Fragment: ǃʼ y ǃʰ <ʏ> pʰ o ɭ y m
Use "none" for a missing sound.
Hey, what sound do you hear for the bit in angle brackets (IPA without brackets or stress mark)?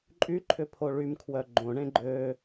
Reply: ʏ